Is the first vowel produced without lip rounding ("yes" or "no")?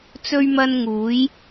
no